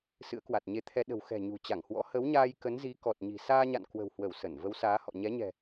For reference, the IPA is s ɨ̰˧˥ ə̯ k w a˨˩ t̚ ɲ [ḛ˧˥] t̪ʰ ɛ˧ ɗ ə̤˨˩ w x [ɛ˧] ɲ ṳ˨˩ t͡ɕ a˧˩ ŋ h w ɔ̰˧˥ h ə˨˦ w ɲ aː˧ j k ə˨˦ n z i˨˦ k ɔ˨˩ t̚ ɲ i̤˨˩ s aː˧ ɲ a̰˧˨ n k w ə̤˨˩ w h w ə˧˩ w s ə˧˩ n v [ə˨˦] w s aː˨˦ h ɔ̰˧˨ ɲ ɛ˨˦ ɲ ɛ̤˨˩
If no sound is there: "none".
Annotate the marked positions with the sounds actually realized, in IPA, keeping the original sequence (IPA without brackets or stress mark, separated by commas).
e˧, ɛ̤˨˩, ə˨˦